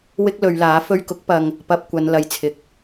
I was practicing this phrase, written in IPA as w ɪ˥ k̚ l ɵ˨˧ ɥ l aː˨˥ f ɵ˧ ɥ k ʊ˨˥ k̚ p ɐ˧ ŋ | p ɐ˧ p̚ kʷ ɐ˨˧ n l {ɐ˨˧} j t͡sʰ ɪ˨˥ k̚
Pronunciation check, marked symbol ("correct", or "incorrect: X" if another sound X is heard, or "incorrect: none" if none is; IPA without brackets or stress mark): correct